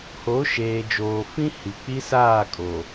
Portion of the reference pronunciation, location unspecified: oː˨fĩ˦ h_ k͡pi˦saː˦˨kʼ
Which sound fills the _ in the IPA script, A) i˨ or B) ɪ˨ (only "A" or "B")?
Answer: A